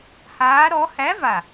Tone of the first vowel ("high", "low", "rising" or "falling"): rising